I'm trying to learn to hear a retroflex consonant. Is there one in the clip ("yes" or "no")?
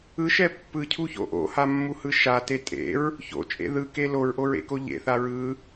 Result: no